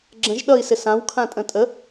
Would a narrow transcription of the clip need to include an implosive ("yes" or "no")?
yes